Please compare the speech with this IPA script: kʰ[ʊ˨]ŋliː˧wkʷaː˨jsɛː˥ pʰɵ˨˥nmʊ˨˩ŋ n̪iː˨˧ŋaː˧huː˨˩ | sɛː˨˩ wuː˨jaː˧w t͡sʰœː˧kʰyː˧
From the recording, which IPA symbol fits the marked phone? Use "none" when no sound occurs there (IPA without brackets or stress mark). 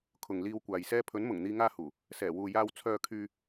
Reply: ʊ˨